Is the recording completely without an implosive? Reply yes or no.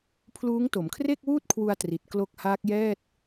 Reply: yes